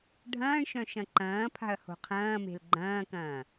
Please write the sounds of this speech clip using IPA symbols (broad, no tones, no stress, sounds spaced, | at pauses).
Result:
ɖʱ ɐ̃ː ɳ ʃ œ̃ ʃ ɐ̃ ǃ ɐ̃ː pʰ a̤ ɐ̯ h o̤ qʰ ɐ̃ː m e̤ l ɡ͡ǃ ɐ̃ː k ɐ̃ː